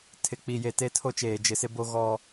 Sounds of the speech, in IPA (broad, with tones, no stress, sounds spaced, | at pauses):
tʰ ɪ˨ k͡p i˨ j e˨ t e˦ tʰ o˦ t͡ʃ eː˨ d͡ʒ ɪ˨ s ɪ˦ b o˦ ɣ ɔ˦